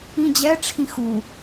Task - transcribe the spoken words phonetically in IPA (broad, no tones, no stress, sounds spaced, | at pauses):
ĩ d͡ʑ ɛ ʈ͡ʂʰ ĩ x u